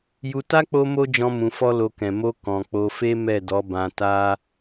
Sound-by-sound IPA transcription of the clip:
j u˧ t a˦ k͡p o˦ m o˦ d͡ʒ ɔ̃˦ m ũ˧ f ɔ˦ l o˧ k ɛ̃˨ m o˧ k ɔ̃˨ k͡p o˧ f e˦ m ɛ˦˨ d ɔ˨˦ b ã˧ t a˦

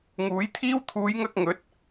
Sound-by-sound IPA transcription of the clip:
ŋ uː˨˥ j t̪ʰ iː˥ w t̪ʰ uː˨˧ j ŋ ɐ˧ k̚ ŋ ɵ˨˥ t̚

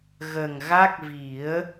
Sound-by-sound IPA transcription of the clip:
ɣ ə˨˩ ŋ ɣ a˦˥ k̚ v i˨˩˦ ə̯

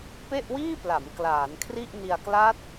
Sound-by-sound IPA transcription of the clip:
p e˥˩ ʔ w iː˥˩ p l a˩˦ m k l aː˩˦ n kʰ r i˥˩ ʔ n i˧ a̯ k l a˦˥ t̚

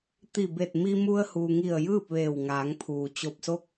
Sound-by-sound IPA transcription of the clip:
t̪ i˧˩ b e˧˩ t̚ m i˧ m u˧ ə̯ h uː˩ ŋ i˧˩ ə̯ j ɯː˥˨ p̚ ʋ eː˧˩ w ŋ aː˩˧ ŋ pʰ uː˩ t͡ɕ o˧˩ p̚ s o˥˨ k̚

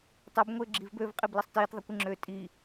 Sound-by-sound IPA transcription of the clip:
tˤ i b ŋʷ ɪː ɡ͡ǁ i v b øː v qʼ i b l i sˤ t iː t ðˤ ɪ kʷ ɨ ŋ͡ǁ øː tʼ i

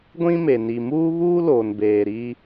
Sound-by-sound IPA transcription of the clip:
ɡʷ ĩ˦ m e˨ n i˨ m uː˦ β uː˦ l oː˨ n b eː˨ ɾ i˦

